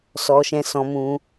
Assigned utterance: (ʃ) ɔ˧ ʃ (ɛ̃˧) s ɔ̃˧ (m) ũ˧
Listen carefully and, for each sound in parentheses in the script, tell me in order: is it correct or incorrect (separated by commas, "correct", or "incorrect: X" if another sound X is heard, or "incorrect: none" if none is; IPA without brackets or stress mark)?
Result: incorrect: s, correct, correct